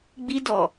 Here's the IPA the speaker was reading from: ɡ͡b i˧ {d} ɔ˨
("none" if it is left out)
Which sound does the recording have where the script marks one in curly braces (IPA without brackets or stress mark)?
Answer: d